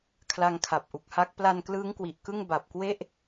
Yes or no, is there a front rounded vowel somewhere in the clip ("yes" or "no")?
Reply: no